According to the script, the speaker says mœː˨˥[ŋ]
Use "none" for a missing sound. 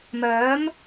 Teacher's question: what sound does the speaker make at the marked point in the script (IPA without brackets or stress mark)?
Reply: m